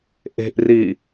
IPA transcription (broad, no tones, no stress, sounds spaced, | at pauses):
ʔ e̤ ʔ r i